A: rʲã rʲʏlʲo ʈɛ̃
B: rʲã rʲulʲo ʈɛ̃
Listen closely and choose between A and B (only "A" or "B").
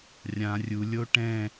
B